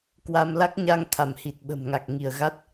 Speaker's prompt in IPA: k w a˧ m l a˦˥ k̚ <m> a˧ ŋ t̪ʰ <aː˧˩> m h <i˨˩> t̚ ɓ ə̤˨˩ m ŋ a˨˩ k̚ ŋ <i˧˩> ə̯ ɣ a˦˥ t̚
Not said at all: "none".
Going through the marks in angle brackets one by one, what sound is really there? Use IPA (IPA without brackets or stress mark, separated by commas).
ɲ, a˧˩, i˨˩, i˧˩